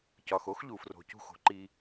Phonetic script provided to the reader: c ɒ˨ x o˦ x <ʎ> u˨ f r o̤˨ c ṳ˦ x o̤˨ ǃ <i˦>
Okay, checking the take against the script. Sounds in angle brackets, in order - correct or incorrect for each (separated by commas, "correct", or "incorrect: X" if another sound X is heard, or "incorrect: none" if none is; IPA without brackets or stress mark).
correct, correct